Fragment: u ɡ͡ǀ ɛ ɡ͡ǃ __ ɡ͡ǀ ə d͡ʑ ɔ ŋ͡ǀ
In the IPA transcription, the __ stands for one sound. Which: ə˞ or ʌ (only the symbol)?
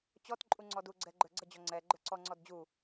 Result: ə˞